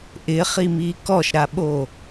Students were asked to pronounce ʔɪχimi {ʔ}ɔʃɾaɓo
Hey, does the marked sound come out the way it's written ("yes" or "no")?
no